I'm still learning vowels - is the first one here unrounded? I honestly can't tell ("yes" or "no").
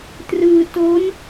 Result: yes